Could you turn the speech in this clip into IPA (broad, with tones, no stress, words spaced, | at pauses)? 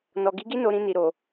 nɔ˨ɡi˨˦ɡi˦ no˧ɾĩ˧ni˨ ɾo˨